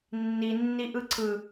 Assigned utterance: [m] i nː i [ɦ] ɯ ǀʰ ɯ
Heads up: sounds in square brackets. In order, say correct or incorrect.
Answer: incorrect: nː, incorrect: ʔ

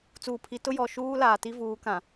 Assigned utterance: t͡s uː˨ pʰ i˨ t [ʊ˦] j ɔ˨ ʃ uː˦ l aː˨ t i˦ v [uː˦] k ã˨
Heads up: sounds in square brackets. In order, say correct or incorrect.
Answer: correct, incorrect: uː˨˦

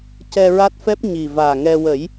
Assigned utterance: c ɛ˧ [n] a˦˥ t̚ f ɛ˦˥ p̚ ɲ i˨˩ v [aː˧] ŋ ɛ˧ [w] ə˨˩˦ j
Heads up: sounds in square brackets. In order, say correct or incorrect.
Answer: incorrect: ɹ, incorrect: aː˨˩, correct

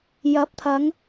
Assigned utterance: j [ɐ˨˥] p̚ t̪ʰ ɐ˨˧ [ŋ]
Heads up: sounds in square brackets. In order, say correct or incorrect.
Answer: correct, correct

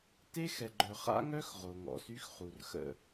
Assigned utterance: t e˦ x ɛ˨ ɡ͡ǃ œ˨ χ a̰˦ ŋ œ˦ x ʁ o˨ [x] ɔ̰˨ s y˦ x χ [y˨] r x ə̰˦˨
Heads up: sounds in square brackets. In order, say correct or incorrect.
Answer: incorrect: ŋ, incorrect: u˨

